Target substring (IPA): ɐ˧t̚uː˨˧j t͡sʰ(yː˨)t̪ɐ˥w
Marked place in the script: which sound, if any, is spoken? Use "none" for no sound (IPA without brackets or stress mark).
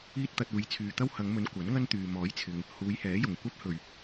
yː˨